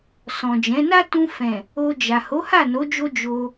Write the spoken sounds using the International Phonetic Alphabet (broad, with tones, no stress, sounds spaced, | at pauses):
s ɔ̃˨ d͡ʒ ɛ̃˨˦ n a˦ t ũ˧ f ɛ̃˨ | o˧ d͡ʒ a˨ h o˨˦ h a˦˨ n o˨˦ d͡ʒ o˧ d͡ʒ o˧